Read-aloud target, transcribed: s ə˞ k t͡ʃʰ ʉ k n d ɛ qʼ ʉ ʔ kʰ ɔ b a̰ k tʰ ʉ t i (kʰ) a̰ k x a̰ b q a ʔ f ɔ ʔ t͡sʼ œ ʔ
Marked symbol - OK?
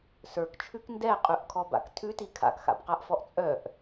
yes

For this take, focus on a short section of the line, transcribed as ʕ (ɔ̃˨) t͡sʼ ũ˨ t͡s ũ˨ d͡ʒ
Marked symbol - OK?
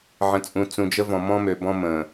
no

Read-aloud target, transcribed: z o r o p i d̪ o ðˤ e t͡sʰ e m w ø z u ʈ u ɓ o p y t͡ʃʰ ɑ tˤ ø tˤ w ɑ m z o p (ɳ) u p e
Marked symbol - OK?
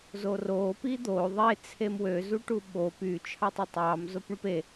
yes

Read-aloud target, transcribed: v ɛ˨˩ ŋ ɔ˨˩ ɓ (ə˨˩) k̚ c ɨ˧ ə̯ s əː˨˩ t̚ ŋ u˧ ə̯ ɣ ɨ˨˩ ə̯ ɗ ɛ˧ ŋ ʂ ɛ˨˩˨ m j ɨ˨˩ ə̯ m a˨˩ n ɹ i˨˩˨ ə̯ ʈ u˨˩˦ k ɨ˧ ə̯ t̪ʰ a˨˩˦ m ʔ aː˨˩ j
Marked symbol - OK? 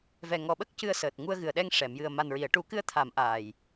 no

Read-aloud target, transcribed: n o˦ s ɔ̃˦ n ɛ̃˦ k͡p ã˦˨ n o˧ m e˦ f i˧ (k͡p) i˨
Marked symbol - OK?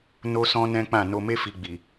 no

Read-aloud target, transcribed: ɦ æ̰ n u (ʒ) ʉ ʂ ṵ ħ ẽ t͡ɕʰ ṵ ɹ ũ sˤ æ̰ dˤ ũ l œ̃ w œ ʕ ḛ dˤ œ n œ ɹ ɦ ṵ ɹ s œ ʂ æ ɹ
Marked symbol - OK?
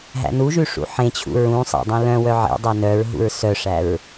yes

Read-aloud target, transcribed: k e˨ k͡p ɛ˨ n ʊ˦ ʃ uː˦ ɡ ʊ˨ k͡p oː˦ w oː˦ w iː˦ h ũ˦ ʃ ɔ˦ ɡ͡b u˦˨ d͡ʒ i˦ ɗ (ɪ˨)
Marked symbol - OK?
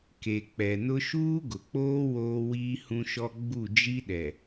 no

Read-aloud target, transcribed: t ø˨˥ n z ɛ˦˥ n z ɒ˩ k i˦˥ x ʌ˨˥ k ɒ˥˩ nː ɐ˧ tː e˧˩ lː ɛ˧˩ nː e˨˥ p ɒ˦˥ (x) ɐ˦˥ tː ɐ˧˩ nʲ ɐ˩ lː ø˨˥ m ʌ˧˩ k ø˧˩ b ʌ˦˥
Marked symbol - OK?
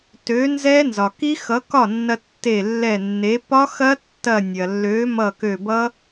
yes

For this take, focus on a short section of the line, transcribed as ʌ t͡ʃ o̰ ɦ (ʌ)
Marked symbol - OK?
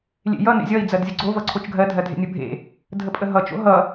yes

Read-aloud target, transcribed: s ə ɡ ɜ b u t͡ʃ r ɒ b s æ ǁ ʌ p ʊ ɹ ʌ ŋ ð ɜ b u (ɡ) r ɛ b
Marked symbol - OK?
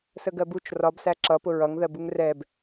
no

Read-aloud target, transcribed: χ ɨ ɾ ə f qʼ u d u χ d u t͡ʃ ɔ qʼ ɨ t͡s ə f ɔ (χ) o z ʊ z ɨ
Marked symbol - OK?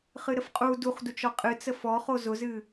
yes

